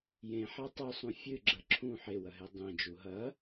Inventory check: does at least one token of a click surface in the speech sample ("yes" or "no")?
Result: yes